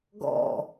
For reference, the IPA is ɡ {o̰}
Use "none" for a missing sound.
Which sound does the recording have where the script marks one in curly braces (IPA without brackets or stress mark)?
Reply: ɔ̰